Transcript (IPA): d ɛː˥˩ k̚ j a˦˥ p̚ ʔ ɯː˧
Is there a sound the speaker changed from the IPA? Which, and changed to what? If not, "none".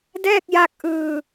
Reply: p̚ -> k̚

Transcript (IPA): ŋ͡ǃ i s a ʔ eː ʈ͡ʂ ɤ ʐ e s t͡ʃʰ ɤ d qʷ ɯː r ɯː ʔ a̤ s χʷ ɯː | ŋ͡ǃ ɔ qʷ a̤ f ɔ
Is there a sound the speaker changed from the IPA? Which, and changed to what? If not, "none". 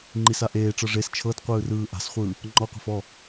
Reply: none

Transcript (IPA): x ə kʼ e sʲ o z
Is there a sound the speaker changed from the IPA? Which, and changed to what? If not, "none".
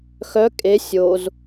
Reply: ə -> œ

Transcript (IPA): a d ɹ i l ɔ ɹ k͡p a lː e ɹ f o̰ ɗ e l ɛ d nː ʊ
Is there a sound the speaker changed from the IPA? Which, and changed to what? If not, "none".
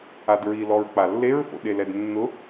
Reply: none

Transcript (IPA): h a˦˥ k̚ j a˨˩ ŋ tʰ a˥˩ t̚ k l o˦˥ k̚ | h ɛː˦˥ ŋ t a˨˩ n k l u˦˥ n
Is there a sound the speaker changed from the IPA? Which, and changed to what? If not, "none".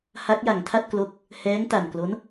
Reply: u˦˥ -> o˦˥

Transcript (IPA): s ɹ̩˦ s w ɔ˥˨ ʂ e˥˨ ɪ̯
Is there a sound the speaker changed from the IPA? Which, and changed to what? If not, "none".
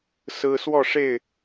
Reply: none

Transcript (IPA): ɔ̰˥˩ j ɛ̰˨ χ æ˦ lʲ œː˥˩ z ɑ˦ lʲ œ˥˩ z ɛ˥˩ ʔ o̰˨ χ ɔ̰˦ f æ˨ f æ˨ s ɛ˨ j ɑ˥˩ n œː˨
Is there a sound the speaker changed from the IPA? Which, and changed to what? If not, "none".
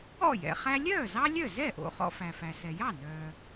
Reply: none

